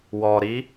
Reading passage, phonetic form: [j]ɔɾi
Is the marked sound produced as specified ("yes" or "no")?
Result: no